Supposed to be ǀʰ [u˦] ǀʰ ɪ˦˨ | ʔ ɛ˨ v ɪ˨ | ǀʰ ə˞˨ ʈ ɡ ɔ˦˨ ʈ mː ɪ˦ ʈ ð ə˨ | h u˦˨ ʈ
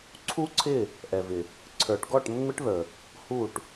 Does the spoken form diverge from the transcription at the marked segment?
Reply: no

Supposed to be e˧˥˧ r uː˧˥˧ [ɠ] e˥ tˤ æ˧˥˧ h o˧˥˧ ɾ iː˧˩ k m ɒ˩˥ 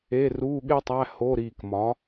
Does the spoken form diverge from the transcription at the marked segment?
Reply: no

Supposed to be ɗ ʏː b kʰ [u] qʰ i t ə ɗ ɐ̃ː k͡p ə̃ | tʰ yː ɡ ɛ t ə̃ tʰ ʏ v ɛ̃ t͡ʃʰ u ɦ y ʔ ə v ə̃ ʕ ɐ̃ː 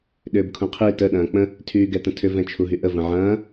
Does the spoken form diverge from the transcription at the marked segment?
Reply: yes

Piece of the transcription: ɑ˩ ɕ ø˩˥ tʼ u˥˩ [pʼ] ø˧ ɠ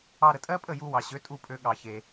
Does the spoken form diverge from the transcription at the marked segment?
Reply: no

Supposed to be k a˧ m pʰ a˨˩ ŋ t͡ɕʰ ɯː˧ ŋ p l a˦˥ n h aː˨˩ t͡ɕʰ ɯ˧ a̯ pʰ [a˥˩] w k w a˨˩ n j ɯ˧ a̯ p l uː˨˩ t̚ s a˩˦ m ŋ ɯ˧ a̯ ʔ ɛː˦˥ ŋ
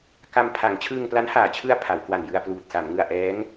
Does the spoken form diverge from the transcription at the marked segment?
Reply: yes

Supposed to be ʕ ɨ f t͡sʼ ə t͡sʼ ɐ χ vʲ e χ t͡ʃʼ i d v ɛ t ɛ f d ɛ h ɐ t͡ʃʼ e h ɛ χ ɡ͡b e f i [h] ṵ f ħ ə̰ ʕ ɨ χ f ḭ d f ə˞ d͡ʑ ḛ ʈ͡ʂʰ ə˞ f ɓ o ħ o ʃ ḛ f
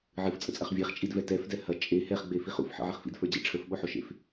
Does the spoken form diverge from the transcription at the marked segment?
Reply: yes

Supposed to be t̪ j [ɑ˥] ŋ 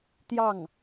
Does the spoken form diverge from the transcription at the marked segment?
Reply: yes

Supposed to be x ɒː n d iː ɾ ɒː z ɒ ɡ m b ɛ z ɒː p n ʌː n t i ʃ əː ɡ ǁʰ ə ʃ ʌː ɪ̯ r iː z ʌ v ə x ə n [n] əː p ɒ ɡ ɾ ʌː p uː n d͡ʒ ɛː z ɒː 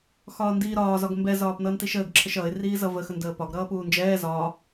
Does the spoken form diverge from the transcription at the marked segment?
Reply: yes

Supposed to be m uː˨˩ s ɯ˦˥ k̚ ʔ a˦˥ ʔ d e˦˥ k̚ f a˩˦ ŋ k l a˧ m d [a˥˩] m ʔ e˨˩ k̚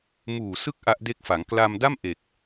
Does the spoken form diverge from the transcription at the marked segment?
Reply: no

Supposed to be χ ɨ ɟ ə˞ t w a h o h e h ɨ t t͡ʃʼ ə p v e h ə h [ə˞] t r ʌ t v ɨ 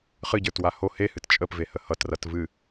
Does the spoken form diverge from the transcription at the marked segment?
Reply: yes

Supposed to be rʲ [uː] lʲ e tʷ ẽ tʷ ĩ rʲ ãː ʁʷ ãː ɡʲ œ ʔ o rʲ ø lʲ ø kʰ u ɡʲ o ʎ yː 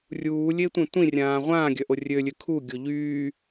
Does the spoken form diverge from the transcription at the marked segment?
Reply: no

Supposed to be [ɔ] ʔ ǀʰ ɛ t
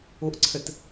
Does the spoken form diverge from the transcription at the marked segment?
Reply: yes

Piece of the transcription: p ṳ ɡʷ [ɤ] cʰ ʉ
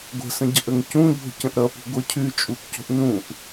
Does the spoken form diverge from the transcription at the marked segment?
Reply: no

